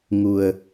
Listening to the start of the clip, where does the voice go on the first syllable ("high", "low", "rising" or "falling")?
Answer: low